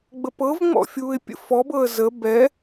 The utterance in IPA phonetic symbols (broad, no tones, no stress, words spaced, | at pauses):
ɡ͡bəpɤvŋ͡mɔ̰ fʲuːɪ̯pʲə̰fɔbɤə̯ zə bɛ